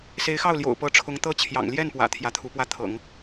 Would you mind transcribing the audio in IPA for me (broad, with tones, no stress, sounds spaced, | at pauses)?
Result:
s e˧˥ ɪ̯ x ɑ˥˩ ʊ̯ l j o̰˨˩ ʊ̯ p ɤ˧˥ ʈ͡ʂʰ ʊ˧˥ ŋ t̪ ɤ˥ t͡ɕʰ j ɑ̰˨˩ ŋ l j ɛ˥˩ n p w ä̰˨˩ t̪ʰ j ä˧˥ t̪ʰ u˧˥ p w ä˥˩ t̪ʰ ɤ̰˨˩˦ ŋ